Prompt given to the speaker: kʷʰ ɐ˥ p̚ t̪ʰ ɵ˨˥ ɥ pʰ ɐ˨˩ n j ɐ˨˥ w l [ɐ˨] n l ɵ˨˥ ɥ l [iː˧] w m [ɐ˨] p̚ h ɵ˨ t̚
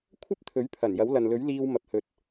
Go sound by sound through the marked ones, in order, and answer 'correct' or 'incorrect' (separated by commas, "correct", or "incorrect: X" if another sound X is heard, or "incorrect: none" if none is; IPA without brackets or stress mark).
correct, correct, correct